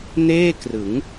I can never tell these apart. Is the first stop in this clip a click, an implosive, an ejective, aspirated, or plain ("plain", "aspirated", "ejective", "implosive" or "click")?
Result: plain